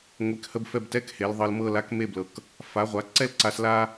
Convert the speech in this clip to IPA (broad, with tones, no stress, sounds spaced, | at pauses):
ŋʷ e˧ k h ə˥ b f ɛ˥˧ b t ɛ˥ k h e˩˧ l ðˤ ɤ˧ l m ɤ˥˧ l a˥ k m e˥˧ b l ɤ˧˩ k | f a˩˧ ʁʷ a˩˧ ǀ ɛ˥ l ǀ a˧ s l a˥